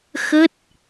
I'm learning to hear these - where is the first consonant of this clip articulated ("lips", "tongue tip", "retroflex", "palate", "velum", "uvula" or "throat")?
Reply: velum